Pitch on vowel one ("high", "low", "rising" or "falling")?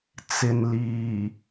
low